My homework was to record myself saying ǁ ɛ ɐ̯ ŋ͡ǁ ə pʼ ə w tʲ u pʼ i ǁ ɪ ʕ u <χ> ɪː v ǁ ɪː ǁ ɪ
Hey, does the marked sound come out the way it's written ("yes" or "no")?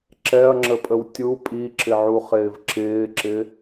yes